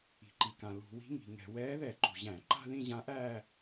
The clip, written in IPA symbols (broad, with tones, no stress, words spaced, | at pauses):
i̤˩ǃi˩kã˩ lṳ˧˩˧wi̤˧˥ŋi̤˩ŋɛ̤˧˩˧ wɛː˧˥ðɛ˧˩˧ǃṳ˩ʑæ̃˧˩˧ ǃa̤˥˧ðĩ˥˧ʑã˧˥ʔæː˥˧